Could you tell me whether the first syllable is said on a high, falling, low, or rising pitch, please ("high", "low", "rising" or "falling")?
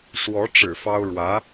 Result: rising